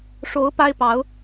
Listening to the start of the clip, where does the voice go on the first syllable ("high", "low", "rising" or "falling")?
rising